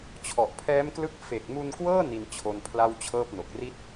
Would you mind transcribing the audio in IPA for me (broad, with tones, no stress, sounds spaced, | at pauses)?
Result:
t͡ɕʰ ɔ˨˩ ʔ pʰ ɛː˦˥ m k l ɯ˦˥ k̚ f e˨˩ k̚ m u˧ n k w ɤː˥˩ n i˧ n t͡ɕʰ o˧ n pʰ l a˥˩ w t͡ɕʰ ɤː˥˩ p̚ n o˨˩ k̚ r i˦˥ t̚